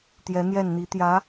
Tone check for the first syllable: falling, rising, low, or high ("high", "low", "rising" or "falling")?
rising